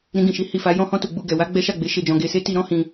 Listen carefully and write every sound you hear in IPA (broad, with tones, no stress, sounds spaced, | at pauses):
ɾ ĩ˧ ɡ ĩ˨ ʃ i˨˦ h i˧ f a˧ j ɔ̃˧ h ɔ̃˧ t u˨ ɡ͡b u˨ ɡ ɛ˨ w a˨˦ ɡ͡b ɛ˦ ʃ a˦˨ ɡ͡b e˨˦ ʃ e˧ d͡ʒ ɔ̃˨ ɡ e˨ s e˧ t i˦ ɾ ɔ̃˦ h ĩ˧